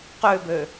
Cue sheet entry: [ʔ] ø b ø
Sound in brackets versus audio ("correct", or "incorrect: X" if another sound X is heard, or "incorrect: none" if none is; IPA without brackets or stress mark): incorrect: q